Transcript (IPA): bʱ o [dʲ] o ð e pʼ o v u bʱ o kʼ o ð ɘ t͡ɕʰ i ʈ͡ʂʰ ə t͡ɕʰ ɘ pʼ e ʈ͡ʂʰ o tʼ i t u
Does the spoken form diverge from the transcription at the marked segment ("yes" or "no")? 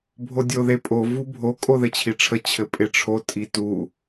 no